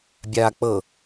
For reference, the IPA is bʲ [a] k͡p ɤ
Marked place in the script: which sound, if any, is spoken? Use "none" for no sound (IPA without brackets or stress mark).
a